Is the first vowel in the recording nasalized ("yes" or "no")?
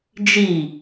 no